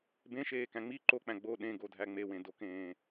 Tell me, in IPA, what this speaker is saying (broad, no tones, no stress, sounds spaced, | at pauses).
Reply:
b ẽ ʃ eː k æ̃ ŋ͡m i ǃ o k͡p æ̃ ɡ͡b o ɗ ẽ ɡ o dʱ æ ŋ͡m e w ẽ d o k ẽː